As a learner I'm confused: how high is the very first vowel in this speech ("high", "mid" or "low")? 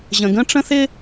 mid